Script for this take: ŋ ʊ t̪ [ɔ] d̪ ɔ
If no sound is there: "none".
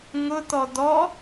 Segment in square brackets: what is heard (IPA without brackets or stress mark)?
ɔ